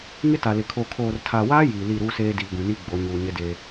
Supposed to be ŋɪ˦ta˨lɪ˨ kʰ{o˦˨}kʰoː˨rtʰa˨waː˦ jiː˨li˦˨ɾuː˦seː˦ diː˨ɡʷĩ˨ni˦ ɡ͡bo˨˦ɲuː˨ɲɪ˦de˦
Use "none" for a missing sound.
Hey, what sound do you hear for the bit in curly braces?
o˨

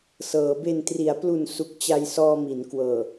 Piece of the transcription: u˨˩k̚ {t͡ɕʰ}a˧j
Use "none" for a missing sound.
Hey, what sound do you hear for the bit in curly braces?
t͡ɕ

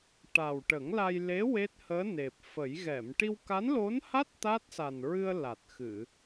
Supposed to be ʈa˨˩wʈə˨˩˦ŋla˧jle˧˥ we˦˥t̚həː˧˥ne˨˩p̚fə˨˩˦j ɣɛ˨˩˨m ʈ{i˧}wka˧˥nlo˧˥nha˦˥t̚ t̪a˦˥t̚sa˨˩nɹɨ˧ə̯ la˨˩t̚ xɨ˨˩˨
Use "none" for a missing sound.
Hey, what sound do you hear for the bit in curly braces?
i˧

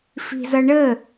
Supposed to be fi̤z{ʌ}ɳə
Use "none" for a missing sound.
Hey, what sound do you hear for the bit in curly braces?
ʌ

